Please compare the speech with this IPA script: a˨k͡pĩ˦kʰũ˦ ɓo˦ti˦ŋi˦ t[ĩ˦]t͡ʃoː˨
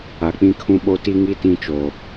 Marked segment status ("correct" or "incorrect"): correct